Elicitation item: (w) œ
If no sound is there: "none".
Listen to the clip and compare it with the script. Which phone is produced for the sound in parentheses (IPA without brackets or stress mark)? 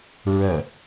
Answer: ɹ